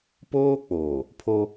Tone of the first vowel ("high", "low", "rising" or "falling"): high